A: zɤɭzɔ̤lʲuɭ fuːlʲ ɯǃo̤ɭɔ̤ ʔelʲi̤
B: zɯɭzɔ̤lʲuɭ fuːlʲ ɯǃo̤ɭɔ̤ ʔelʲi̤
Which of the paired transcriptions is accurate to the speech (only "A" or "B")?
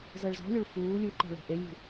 A